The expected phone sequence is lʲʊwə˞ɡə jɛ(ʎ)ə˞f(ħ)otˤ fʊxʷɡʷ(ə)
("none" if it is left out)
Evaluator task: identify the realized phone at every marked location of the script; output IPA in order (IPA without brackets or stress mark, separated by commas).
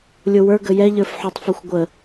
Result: ʎ, ħ, ə